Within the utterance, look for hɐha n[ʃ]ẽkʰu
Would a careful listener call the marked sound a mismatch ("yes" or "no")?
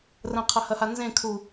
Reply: yes